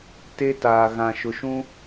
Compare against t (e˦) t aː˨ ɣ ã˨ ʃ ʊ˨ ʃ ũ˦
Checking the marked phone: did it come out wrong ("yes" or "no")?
no